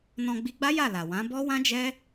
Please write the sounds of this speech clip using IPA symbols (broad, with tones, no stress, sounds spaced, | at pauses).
n ɔ̃˧ ɡ͡b i˧ ɡ͡b a˦ j a˦˨ l a˨ w ã˨˦ b ɔ˦ w ã˦ d͡ʒ ɛ˦